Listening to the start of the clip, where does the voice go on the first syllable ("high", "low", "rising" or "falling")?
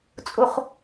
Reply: high